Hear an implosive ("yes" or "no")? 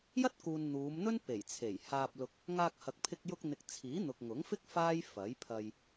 no